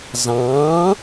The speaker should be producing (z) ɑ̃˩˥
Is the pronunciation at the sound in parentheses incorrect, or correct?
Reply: correct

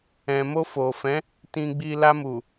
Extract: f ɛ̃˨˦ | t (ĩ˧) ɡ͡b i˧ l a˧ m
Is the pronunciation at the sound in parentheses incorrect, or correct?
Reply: correct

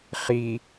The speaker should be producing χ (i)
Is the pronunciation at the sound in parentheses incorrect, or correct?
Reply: correct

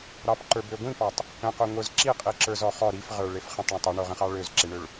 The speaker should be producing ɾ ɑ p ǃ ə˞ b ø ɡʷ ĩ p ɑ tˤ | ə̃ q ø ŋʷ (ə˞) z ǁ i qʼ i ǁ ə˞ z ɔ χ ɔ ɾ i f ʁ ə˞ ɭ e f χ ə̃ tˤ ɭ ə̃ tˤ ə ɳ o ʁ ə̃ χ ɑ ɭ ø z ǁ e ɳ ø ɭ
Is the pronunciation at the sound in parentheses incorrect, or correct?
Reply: correct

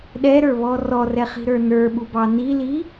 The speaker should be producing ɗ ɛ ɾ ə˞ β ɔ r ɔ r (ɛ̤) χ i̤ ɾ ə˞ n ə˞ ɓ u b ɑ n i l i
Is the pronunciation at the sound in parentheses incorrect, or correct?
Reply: incorrect: ɛ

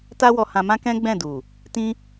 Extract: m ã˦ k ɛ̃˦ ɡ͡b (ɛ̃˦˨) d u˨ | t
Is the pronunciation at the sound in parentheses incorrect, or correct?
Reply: correct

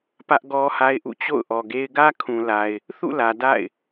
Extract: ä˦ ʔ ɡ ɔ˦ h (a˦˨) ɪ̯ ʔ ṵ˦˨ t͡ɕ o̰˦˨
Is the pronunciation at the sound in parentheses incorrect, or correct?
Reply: incorrect: a˦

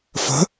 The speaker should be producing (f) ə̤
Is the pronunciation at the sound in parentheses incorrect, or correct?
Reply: correct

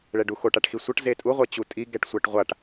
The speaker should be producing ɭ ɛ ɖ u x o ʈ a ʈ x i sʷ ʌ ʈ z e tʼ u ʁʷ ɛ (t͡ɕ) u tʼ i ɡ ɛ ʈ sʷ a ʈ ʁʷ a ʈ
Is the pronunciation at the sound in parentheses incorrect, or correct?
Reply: correct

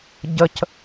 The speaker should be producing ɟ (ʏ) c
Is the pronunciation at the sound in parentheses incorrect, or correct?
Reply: incorrect: ə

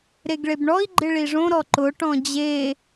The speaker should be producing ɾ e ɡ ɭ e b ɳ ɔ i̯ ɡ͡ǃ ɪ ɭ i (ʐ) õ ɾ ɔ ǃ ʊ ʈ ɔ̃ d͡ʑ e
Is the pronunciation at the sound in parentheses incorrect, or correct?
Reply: correct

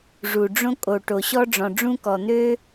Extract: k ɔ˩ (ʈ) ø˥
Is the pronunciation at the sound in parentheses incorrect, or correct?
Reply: incorrect: n̪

